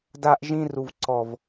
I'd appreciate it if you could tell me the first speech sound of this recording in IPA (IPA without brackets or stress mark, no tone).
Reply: d